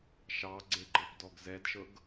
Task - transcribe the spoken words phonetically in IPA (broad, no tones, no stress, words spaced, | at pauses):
ʃɑɡ͡ǀeɡ͡ǃɤp dɔɡzɛdʃɤɡ